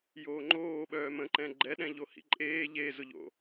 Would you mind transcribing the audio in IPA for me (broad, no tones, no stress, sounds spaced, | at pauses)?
j oː ŋ͡ǃ oː ɓ œː m ə̃ ǃ ɛ̃ ɡ͡ǃ ɛ ɗ ɛ̃ ʎ o h ḭ ǃʼ eː ʎ e z ʊ ʎ o̰